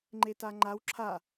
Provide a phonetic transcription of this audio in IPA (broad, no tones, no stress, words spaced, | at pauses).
ŋ͡ǃetaŋ͡ǃaw ǁʰa